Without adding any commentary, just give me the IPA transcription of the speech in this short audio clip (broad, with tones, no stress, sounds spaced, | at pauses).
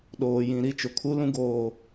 ɗ oː˨ j ĩ˨ ɾ i˦ t͡ʃ ʊ˨ kʰ u˦ l ũ˦ ɡ oː˦